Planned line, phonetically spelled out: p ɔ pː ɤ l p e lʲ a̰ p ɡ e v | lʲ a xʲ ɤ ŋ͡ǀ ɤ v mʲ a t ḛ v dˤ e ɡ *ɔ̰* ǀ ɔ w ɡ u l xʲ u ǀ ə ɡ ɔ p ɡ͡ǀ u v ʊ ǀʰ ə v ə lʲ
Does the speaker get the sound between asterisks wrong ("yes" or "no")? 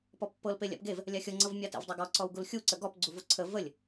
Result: yes